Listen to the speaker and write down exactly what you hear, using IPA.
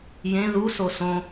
jẽ ðuso sõ

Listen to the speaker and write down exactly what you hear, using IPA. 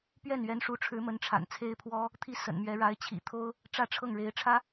pɥɛ˥˩nɥɛ˧˥nʂu˧˥ʈ͡ʂʰɻ̩˧˥ mə˧˥nʈ͡ʂʰa̰˨˩nt͡sʰe˥ɪ̯pʰwɔ˥ | t̪ʰi˧˥ sə̰˨˩nmɥɛ˧˥ɻa˧˥ɪ̯ t͡ɕʰḭ˨˩t̪ʰo˥ʊ̯ | ʈ͡ʂä˥˧ʈ͡ʂʰɤ˥˩ŋɻe˧˥ɪ̯ʈ͡ʂʰä˥

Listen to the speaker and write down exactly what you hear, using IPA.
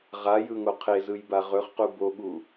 ʁajɯŋo qʰezɯjba ʁɵχqu boɠu

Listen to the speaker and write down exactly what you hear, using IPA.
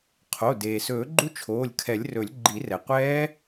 qʰo˩˧˩ deː˩sɵː˨˩˦ɡ͡ǃu˦˥ t͡ʃʰoː˩˧˩lʲkʰɛ˨˩˦lʲrɵ˨˩˦lʲ ɡ͡ǃi˨˩˦rɛ˩qʷɛː˦˥

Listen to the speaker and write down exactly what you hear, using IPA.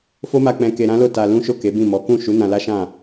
fo˦ma˧ k͡pɛ̃˧ke˧ ɾã˦lo˦˨ ta˧lũ˦ʃo˦˨ ke˨˦bĩ˦˨mɔ˨˦ kũ˦˨ʃu˨˦ nã˧ la˦ʃã˦˨

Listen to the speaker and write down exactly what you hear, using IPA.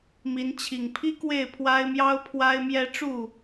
mi˨˦n t͡ɕʰi˨˩ŋpʰi˦ kwe˥˨ɪ̯pʰwa˦ɪ̯mjɑ˦ʊ̯ pʰwa˦ɪ̯mjɛ˦ ʈ͡ʂu˥˨

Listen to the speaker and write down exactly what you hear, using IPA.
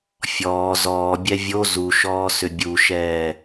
fʲɔː zɔː bʲɛvʲo zuʃɔːsʏ bʲuʃɛː

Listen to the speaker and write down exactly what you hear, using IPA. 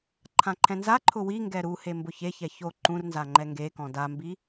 ǃʰãǃʰɛ̃nzaǃʰʊ wiŋɡɛ ɾuhe mbʊçeçɛ ço ǃũrnza ŋ͡ǃɛŋɡekɔ̃ dambi

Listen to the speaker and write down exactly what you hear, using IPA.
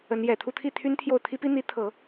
ə˧˥njɛ˨˩ t̪ʰu˥˧t̪ʰi˥˩t̪ʰy˥n t̪ʰjo˥˩ʊ̯ t̪ʰi˥pi˥n̪i˧˥ t̪ʰɤ˨˩˦

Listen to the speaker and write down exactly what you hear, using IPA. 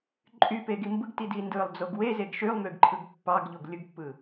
ǃʼypeɡi mbɯɡtidi ndɯlˠd͡zoɡ wezeɡ ʃylˠmyɡǃʰɯɡ pːɑɡʎoɡlʲɯɡpːɯ

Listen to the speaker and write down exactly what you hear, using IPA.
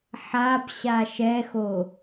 ħabɕa ʃɛxo

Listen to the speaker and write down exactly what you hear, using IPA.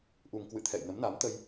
ʔu˨˩ŋkwɨ̰˧˨ t̪ʰɛ̰˧˨jnə˨˦mna˨˦mt̪ə˧j

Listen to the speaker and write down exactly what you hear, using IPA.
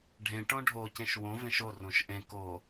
ɖʱẽ ʈõɖʱo cẽʃwõ vẽʃo rõʃʔẽ ko

